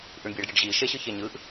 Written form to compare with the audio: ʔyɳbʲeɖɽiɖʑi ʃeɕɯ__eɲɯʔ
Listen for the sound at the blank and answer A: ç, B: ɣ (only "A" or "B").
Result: A